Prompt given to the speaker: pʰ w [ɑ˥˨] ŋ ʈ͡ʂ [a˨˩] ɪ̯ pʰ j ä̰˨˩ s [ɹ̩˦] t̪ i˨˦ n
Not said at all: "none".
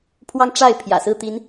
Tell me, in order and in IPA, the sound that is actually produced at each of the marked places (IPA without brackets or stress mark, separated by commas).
ɑ˦, a˥˨, ɹ̩˥˨